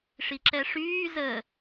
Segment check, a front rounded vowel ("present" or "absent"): present